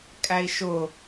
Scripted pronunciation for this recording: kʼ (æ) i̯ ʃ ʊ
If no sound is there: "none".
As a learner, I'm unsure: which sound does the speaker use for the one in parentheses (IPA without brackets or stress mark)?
æ